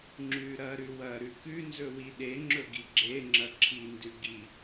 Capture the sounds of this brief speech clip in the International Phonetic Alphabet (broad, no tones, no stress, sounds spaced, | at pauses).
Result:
ŋ͡ǁ ʉ ɾ ɐ ɾ ʉ w ɐ ɾ ʉ k ʉ n z ɵ w i ɗ e ŋ͡ǁ ɵ ɡ i ɡ͡ǁ e ŋ͡ǁ ɐ ǁʰ i n d ʉ ɡ i